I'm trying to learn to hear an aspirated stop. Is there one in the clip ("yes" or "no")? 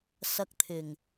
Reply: yes